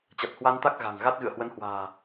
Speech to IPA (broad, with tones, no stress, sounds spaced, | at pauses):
t͡ɕ a˨˩ t̚ h w a˧ n t̪ a˦˥ k̚ ɣ a̤˨˩ ŋ ɣ a˦˥ t̚ ɣ ɨ̰˧˨ ə̯ h w ə˨˦ n h w a̤ː˨˩